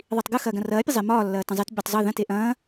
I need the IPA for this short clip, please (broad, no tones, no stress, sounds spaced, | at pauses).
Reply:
ðˤ i tˤ ɡ ɯ x ɐː ɡ ɐ̃ r ɐː pʲ ɐ zˤ e m ɒː lː ɐː t ɐ̃ zˤ e t bʲ ɵ tˤ zˤ ɯ ð ɐ̃ t e ʔ ɐ̃ː